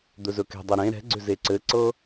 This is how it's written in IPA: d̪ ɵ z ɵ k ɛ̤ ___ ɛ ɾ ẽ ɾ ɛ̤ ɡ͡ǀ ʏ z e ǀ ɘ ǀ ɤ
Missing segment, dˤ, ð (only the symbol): dˤ